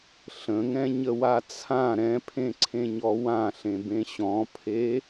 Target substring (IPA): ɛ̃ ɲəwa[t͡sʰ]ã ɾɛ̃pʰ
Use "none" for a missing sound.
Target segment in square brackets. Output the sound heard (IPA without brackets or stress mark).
t͡sʰ